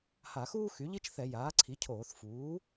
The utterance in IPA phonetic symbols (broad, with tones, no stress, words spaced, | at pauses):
ha˧˩˧xuː˥ xy˩˥ʎi˥t͡ʃ θɛ˧˩˧jaː˩˥ǀʰi˩˥cʰoː˧˩˧θ fuː˩˥